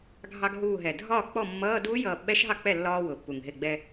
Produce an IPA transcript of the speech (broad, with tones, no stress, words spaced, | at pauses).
ɡʱɑ˧ɡɦuː˧˩ɦɛ˩dʱɒː˥˩ k͡pɔ˥˩mːʌː˧˥˧ duː˦˥jʌː˧˩ ɓɛ˦˥ʃɦɑ˥˩k͡pɛ˥˩ lːɒː˧wʊ˩pːu˩ŋ ɦɪ˧˩ɡ͡bɛ˧